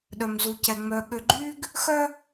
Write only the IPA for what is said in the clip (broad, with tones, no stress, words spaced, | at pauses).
ɗœ˨mzu˨cɛ˨ ŋ͡mœ˨ɠø˨ɡ͡ǃy˦ɡ | xœ˦